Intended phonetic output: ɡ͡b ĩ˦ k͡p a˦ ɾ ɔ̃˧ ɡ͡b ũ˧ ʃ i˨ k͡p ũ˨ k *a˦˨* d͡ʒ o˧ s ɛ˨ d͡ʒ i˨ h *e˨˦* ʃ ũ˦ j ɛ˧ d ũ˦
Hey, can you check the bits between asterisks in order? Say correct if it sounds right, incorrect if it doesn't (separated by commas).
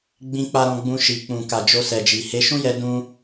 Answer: incorrect, correct